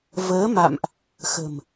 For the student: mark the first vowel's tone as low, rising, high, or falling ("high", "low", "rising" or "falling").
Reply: rising